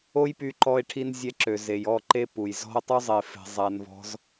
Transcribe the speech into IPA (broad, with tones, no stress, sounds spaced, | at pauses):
o˦ j p y˧ ǃ ɔ˧ ɪ̯ ʈʰ i˧ n zʲ ɛ˧ ǁ ø˨ z e˨ j ɔ˦˨ ǃ e˧ p u˨ j z ɔ̤˧ ə̯ tˤ u˧ zˤ e˨ f e̤˨ zˤ a˧ n v ɔ̤˦ z